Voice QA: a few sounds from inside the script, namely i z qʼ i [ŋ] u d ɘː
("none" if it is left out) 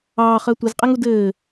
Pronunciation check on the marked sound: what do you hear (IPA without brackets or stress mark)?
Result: ŋ